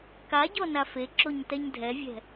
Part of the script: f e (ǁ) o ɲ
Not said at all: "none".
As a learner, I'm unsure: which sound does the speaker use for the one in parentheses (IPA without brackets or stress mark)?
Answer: ǁ